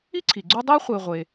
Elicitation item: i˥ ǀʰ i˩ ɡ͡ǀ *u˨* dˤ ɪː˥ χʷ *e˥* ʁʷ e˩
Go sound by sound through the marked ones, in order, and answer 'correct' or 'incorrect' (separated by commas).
incorrect, incorrect